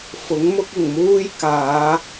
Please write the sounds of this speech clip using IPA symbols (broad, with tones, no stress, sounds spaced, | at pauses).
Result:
f ʊ˨˥ ŋ m ʊ˥ k̚ ɪ˨˩ ŋ m uː˥ j k aː˨˧